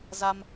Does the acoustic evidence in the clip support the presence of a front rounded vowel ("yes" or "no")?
no